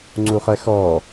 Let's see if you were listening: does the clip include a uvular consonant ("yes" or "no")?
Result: yes